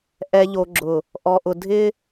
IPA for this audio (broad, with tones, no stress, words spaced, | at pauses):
ʔɛ˨ʎo˨ɡ͡ǁʊ˨ | ʔɔ˨ʔʊ˨ dʱɪ˦